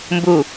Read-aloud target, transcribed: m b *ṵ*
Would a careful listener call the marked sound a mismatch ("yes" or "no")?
yes